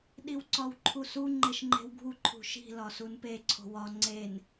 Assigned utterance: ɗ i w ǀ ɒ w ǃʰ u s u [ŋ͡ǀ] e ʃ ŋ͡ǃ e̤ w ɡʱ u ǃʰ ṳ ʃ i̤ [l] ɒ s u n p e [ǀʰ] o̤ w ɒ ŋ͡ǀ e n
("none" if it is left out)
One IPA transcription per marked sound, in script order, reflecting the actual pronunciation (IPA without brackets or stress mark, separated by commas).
ŋ͡ǃ, l, ǀʰ